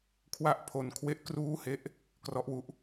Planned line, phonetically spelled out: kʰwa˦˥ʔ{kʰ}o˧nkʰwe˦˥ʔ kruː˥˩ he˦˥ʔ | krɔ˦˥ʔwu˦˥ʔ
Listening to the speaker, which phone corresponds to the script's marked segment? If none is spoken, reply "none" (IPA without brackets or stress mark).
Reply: pʰ